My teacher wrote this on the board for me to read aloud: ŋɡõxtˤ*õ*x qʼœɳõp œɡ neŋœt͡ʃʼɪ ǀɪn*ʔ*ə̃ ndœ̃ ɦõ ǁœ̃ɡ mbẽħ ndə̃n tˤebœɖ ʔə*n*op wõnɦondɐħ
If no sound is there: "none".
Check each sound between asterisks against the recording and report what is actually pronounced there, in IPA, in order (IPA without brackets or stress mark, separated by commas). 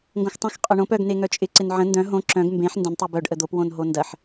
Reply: õ, ʕ, d̪